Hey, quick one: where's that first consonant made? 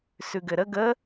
tongue tip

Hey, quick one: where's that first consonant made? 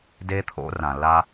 tongue tip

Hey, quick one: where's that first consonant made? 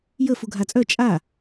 palate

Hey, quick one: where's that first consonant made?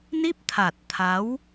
tongue tip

